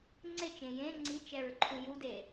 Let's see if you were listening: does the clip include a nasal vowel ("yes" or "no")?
yes